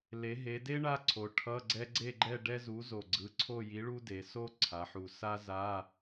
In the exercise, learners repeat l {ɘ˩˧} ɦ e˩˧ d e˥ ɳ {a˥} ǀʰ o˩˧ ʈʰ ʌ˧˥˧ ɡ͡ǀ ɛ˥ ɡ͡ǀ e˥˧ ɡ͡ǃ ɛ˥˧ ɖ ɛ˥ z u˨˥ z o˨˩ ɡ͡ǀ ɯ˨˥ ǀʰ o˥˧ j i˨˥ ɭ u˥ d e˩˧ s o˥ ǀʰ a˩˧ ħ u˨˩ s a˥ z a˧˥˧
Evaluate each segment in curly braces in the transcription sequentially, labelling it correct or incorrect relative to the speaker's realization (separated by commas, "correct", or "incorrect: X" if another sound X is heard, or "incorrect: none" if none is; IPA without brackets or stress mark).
incorrect: e˩˧, correct